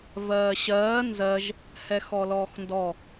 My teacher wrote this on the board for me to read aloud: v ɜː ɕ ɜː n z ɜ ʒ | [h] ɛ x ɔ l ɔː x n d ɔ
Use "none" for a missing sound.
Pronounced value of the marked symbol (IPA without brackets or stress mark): h